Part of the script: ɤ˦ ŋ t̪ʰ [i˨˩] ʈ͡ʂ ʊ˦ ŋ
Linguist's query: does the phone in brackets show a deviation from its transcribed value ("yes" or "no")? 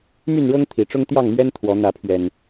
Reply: no